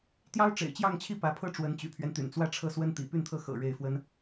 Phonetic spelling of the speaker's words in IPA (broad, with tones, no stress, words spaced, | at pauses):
t̪jɑ˥ʊ̯ʈ͡ʂḛ˨˩ɪ̯t͡ɕjɑ˥˧ŋt͡ɕʰi˥˩ pä˧˥pʰɤ˥ʈ͡ʂwə˧˥n t͡ɕy̰˨˩pʰɥɛ˦nt̪y̰˨˩n t͡swä˥˧ʈ͡ʂʰɤ˥˩swə˥n t̪ḭ˨˩py˥˧nt̪ʰɤ˥˩ xɤ̰˨˩ ɻe˥˩ɪ̯fwə˥n